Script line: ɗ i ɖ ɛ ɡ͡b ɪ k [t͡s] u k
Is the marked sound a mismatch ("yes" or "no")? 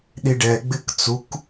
no